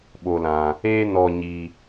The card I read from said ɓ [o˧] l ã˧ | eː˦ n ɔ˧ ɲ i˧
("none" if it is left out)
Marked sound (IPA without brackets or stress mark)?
o˧